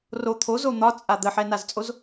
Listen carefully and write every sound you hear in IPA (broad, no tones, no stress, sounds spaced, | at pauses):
r o t̪ʰ o z o n̪ ɒ t͡sʼ a d̪ ə ħ ɛ n a z t͡sʼ o z